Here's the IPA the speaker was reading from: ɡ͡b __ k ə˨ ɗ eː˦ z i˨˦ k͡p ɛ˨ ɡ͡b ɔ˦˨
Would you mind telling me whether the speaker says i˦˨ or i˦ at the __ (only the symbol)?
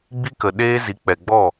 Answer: i˦